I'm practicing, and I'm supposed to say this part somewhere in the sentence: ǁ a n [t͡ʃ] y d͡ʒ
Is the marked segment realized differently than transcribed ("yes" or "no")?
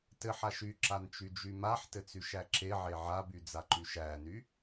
no